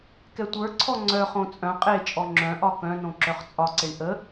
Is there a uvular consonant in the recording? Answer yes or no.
yes